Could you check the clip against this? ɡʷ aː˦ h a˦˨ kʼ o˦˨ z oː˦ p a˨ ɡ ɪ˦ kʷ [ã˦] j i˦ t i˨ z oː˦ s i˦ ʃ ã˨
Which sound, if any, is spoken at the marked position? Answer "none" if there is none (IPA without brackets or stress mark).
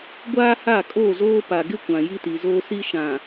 ã˨